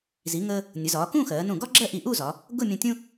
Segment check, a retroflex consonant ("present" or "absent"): absent